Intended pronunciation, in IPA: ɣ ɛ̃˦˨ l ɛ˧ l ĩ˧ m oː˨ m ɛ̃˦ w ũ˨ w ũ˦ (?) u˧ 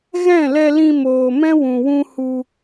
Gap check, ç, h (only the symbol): h